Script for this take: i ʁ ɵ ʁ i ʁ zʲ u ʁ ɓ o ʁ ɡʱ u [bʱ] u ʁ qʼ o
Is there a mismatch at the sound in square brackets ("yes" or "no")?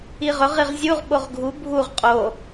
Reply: no